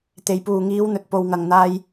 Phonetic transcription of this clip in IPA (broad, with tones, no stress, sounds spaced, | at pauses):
t̪ e˨ j p uː˨ ŋ iː˨˧ w n̪ ɵ˨ t̚ p o˨ w ŋ ɐ˨ ŋ n̪ aː˧ j